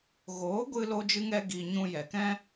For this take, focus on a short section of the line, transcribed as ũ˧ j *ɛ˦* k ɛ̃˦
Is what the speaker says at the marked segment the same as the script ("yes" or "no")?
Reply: no